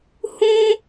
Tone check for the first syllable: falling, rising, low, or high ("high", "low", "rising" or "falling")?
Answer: high